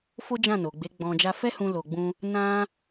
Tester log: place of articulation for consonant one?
labial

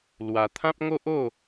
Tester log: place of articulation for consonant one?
alveolar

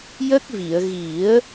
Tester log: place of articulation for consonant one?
palatal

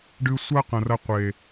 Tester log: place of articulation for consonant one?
retroflex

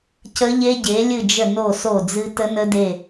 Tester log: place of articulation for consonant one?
palatal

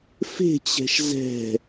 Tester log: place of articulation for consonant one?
labial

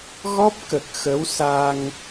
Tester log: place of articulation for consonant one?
velar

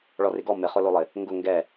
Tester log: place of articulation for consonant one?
retroflex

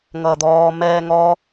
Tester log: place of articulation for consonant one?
velar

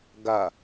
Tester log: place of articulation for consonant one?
velar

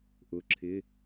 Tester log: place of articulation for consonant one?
glottal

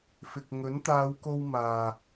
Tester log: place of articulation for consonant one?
labial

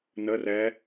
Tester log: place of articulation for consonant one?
alveolar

